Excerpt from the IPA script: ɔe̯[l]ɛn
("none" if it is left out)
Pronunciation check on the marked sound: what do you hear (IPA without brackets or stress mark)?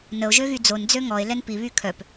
l